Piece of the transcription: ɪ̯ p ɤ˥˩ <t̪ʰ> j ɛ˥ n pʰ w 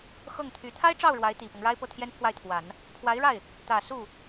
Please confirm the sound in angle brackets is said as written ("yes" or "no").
yes